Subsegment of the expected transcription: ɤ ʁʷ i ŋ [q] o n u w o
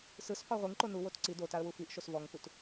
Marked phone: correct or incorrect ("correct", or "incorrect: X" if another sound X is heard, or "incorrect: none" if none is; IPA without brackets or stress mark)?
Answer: incorrect: ǃ